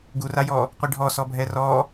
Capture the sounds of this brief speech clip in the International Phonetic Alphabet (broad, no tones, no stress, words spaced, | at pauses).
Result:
ɡurajɔː | qʷiɖʱɔ sɔbʱɛrɔː